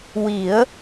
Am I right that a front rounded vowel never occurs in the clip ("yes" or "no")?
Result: yes